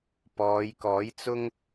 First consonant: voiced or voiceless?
voiceless